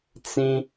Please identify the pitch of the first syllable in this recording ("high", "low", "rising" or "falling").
high